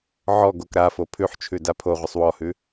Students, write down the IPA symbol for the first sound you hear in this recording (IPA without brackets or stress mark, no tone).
ʕ